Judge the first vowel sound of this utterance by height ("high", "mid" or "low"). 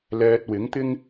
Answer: mid